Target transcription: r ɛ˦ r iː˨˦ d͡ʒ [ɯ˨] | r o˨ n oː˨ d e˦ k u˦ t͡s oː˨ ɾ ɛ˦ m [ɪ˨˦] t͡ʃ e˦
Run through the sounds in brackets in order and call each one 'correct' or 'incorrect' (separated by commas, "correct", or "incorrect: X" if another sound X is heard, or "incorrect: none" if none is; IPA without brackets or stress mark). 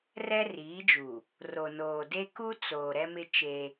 incorrect: u˨, incorrect: ɪ˦